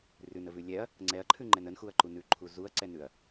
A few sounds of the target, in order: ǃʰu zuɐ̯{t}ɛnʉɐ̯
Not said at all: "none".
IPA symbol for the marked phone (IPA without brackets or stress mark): ǀ